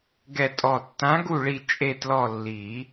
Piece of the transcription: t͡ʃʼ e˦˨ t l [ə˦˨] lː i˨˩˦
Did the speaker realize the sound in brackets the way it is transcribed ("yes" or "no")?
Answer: no